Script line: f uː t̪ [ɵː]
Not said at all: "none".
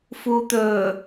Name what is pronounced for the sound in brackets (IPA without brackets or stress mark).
ɵː